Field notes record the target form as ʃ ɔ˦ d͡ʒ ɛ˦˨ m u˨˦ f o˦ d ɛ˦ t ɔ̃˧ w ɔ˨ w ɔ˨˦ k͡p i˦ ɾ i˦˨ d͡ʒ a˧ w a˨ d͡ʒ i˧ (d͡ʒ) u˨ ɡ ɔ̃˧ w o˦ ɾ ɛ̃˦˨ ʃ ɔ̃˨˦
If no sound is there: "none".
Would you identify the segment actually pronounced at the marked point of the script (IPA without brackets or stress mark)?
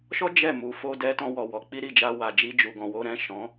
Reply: d͡ʒ